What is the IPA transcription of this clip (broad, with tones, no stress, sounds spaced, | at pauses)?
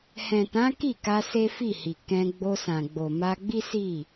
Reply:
h ɛ̃˨ t ã˨˦ k i˦˨ k a˧ s e˦ f i˦˨ h i˨ k ɛ̃˧ ɡ͡b o˧ s ã˨ ɡ͡b o˨ m a˧ ɡ͡b i˦ s i˦˨